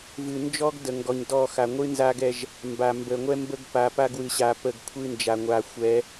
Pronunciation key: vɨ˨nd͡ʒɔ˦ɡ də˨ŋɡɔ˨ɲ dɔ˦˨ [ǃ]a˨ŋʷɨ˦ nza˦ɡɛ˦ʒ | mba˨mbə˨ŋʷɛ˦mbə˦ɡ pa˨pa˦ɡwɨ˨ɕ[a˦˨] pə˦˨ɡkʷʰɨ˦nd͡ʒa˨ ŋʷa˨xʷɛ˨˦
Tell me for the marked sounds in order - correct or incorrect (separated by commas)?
incorrect, incorrect